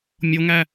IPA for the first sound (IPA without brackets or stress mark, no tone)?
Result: mʲ